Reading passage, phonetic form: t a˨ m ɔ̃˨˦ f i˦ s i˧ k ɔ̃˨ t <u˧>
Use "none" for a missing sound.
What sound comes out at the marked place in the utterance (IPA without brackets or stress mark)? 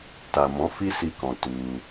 u˧